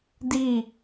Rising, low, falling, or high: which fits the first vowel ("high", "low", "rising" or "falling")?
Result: falling